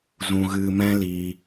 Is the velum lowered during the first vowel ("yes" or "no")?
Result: yes